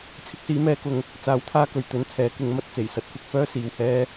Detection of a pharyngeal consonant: absent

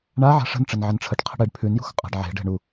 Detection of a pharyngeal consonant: present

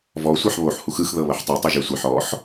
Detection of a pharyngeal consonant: present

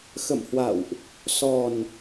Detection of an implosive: absent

